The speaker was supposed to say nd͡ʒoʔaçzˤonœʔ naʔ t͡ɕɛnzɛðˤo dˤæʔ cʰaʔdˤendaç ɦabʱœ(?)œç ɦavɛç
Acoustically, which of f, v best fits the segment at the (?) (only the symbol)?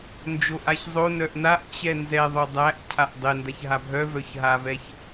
v